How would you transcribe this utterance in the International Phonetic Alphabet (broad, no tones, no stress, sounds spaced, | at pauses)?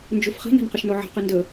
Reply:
n d͡ʒ u f χ i̤ n a̤ n q ə ʃ n o ʕ a̤ q ɨ n d ə